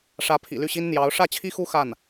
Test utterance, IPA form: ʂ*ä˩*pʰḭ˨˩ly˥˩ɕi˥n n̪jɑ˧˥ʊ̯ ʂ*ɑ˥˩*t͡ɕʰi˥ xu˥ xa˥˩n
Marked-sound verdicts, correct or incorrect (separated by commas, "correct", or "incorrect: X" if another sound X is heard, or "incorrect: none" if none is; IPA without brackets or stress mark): incorrect: ä˧˥, incorrect: ä˥˩